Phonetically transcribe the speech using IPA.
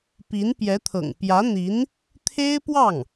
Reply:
pi˧˥npjɛ˧˥t̪ʰɤ̰˨˩ŋ pjä˧˥n̪i˧˥n | t̪ʰe˥ɪ̯pwɑ˥˩ŋ

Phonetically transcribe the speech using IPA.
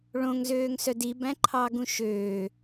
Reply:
ɭõŋzøːŋsœd ibæ̃ǃʰɑɡũ ʃøː

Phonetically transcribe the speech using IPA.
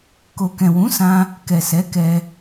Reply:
ko˨kɛ̃˨wũ˨˦ sã˦ | kɛ˨sɛ˨˦kɛ˧

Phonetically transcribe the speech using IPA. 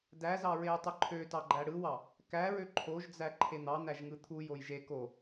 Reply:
dæzɑ ɹejtˤɯǃʰøtɑ ɡ͡ǃæɽɯwɑ | kæɹø ǃʰoʒd͡zæ ǃʰen̪ɑn̪æʒ ŋɯt̪ʰujoj ʒe ko

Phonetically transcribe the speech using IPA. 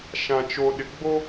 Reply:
ʃã˨t͡ʃo˨ɗɪ˨ ɡ͡bo˦

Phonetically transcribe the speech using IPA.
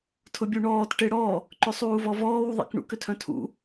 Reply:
tʰʊbʲuɳɔːt ʈeɽɔ | ǃʏsˤuːvɔvɔːw ðˤḭkɳṵk ʏtʰœ̃tʰṵ

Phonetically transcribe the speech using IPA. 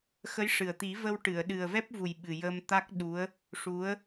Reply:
xə˧˥jʂɨ˨˩ə̯t̪i˨˩˦ və˧wʈɨ˨˩˨ə̯ ɗɨ˨˩ə̯vɛ˦˥p̚vu˨˩j ɓɨ˨˩jə˧mt̪a˦˥k̚ɗu˧˥ə̯ | ʂu˧˥ə̯

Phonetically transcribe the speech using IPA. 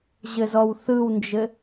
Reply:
ʑɘzɔwθɯwnd͡ʒɘ

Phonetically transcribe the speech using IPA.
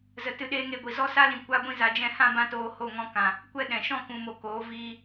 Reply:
zə˨ tɨ˧ɗeː˦ŋe˧ɡʷi˨ zɔ˦sa˦lĩ˨ kʷa˦ɡʷĩ˦za˧ d͡ʒɛ̃˦˨hã˦bã˦toː˧ ho˦˨ŋɔ̃˧ kã˨ | kʷɛ˦ɗɛ̃˨ ʃɔ̃˦˨kũ˨mo˨ koː˨˦viː˧

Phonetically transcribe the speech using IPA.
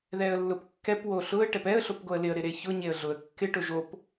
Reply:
ðɛə̯lːʊpkːɛp woɬʊə̯ ʈɛpɛə̯ ɬopɡoə̯lɪə̯ ɾɪɾeçʊ ɲeə̯ɮʊə̯ kːɪ ʈʊʒop

